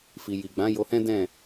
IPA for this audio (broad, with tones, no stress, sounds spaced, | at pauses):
f i˨ j i˨ ɡ͡b ã˨˦ j o˧ h ɛ̃˦ d ɛ̃˦˨